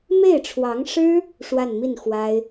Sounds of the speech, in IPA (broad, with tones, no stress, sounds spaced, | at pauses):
m e˥˩ ɪ̯ ʈ͡ʂʰ w ɑ˧˥ ŋ ʂ ɻ̩˥ | ʂ w a˥˧ n m i˥˩ n x w a˥ ɪ̯